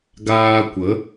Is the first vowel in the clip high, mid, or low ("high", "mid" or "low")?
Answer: low